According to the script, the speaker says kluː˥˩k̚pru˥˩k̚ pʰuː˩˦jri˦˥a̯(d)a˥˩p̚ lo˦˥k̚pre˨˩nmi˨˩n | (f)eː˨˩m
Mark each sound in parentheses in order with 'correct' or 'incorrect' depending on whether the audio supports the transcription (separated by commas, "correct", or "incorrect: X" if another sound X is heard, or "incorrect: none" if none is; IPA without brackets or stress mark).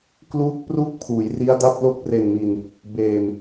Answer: correct, incorrect: b